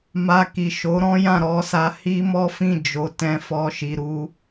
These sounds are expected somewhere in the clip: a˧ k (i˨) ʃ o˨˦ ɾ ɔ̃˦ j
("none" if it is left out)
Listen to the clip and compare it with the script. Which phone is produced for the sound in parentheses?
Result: i˨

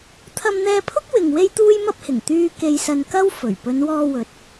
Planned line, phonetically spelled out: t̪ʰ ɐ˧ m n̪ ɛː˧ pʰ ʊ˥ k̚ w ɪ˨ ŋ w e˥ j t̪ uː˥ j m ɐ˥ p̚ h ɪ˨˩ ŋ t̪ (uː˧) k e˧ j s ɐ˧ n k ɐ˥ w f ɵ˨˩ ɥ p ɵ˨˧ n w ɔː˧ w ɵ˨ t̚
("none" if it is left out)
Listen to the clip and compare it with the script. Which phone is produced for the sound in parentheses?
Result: yː˧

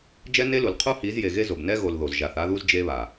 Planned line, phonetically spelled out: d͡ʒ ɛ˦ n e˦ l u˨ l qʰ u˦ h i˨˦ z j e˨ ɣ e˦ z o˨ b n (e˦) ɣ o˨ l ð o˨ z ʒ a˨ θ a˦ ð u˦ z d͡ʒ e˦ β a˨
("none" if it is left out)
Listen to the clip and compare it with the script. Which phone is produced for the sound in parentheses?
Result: ɛ˦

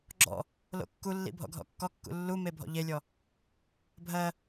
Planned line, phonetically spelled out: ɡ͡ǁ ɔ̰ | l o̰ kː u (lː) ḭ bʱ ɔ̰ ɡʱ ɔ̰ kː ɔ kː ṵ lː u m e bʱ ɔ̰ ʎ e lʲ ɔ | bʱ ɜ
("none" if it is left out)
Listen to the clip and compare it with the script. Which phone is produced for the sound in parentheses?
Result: lː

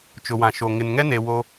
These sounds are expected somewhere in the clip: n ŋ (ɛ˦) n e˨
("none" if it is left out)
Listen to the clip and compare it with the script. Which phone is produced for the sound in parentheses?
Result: ɛ˦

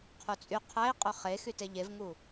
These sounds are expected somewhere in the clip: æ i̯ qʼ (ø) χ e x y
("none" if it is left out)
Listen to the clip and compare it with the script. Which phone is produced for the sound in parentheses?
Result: ø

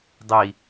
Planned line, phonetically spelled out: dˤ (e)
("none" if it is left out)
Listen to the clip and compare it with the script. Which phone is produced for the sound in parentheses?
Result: i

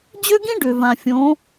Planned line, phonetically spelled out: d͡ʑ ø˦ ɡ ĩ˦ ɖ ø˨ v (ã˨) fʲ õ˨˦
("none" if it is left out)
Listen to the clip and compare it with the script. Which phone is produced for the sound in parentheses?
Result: ã˨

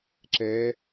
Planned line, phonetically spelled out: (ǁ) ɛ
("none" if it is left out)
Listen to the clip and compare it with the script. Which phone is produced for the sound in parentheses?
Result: ǁ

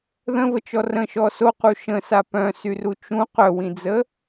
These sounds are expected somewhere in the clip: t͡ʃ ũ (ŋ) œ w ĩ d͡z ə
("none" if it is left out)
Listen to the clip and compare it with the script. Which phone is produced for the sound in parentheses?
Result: q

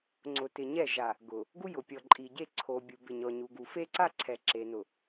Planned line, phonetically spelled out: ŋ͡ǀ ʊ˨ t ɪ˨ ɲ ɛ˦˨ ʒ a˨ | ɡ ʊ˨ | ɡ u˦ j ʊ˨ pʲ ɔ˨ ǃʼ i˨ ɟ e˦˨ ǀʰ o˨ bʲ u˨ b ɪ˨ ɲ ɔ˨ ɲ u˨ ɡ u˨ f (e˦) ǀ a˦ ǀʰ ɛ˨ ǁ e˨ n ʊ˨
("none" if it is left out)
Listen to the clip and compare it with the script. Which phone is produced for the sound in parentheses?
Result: e˦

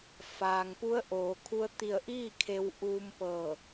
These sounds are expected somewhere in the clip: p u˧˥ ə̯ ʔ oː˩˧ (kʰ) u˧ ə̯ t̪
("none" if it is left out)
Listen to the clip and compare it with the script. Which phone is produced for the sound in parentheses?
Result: kʰ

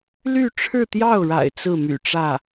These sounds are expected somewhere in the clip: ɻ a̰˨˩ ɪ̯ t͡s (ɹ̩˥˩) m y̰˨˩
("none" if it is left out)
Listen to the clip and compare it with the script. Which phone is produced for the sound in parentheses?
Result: ɹ̩˥˩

